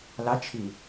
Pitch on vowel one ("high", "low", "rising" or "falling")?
rising